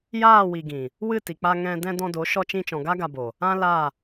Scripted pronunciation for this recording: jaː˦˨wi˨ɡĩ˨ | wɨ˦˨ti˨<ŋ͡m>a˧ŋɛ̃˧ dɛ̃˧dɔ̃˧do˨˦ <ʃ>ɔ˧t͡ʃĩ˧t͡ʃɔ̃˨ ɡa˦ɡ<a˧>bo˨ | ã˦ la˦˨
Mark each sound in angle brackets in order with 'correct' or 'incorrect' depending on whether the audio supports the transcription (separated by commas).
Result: incorrect, correct, correct